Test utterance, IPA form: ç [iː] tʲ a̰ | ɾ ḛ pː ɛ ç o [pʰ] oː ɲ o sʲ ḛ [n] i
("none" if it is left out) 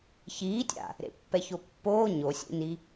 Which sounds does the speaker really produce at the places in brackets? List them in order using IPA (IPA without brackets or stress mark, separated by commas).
iː, pː, n